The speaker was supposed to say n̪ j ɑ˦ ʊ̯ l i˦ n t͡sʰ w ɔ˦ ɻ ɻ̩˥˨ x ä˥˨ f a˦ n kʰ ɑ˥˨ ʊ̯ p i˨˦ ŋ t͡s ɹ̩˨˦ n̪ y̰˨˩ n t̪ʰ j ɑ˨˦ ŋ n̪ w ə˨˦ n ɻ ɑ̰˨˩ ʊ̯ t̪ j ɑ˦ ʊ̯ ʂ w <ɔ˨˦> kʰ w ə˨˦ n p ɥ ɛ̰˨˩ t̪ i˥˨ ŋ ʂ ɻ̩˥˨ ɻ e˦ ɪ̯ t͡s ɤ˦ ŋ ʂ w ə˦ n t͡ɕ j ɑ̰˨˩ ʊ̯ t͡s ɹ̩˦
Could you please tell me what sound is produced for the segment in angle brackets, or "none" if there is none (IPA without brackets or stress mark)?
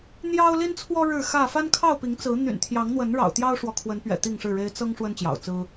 ɔ˨